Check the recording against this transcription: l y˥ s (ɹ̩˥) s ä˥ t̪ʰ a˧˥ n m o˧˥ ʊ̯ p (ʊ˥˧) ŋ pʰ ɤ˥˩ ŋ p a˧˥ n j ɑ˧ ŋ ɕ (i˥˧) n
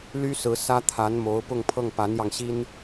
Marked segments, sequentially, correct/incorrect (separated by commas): incorrect, correct, incorrect